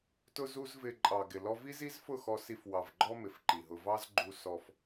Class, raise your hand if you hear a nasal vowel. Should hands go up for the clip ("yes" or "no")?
no